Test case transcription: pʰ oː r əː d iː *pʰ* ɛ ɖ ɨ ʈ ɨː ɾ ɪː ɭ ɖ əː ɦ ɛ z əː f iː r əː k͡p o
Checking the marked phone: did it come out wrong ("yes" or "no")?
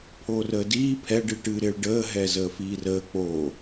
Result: no